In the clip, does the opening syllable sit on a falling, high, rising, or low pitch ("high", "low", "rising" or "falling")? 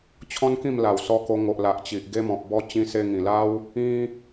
high